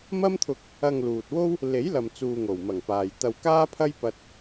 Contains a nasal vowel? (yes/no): no